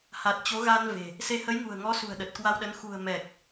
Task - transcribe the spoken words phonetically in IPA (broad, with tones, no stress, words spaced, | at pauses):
ha˨˩t̚ t͡ɕo˨˦ɣa˧n ve̤˨˩ | se˨˦hə˨˦jŋṳ˨˩ə̯ŋɔ˨˦ sṳ˨˩ə̯ɗə˨˩t̚kwa˧wɗə˨˦n xṳ˨˩ə̯mɛ˨˩k̚